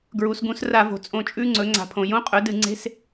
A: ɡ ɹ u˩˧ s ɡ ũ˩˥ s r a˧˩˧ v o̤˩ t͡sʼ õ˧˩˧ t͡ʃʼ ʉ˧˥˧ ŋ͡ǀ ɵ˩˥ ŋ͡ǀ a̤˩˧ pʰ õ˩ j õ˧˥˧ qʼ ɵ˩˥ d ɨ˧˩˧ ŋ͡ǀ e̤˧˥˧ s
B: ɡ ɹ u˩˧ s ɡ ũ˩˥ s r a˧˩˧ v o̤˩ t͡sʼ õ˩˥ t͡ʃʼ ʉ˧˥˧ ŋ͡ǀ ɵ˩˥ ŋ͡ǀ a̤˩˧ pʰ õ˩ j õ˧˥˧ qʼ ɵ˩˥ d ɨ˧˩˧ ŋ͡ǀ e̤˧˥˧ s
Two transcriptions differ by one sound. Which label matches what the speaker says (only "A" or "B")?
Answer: A